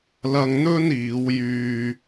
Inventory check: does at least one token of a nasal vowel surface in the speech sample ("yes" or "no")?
no